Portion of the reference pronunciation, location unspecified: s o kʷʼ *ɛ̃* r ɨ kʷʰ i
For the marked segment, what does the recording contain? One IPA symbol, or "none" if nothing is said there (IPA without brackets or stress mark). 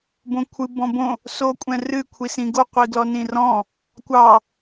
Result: ɛ̃